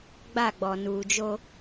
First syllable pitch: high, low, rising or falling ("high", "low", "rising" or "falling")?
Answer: falling